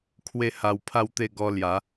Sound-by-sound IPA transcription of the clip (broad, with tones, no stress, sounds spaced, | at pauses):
kʰ w e˥˧ h a˧ w pʰ a˦ w t̪ e˥˧ ɡ ɔ˧ l j a˨˦